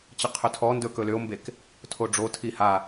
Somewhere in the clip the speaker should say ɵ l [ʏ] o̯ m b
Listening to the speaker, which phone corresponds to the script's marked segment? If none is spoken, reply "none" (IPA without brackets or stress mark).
ʏ